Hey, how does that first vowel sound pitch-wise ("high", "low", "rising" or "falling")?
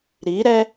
rising